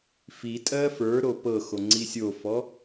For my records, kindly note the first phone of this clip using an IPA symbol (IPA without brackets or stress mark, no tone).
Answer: f